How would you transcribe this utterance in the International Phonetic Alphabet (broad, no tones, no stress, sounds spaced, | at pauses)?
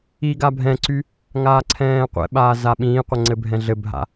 i ɡ a bʱ ɛ̃ ǀ y | ŋ aː ǀʰ ɛ̃ː qʷ ɛ̰ ɓ aː z a ɓ ĩː qʷ ə ŋ͡ǀ ɘ bʱ ɛ̃ ɮ ɘ bʱ a̰